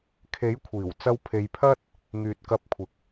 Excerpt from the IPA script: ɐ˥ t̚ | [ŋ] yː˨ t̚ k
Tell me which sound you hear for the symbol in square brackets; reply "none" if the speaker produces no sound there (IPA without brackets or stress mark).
ŋ